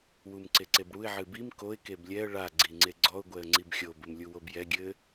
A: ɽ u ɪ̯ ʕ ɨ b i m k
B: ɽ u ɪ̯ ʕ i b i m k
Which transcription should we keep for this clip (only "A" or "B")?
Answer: A